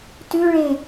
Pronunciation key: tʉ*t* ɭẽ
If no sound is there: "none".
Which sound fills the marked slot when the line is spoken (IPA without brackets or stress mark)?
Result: none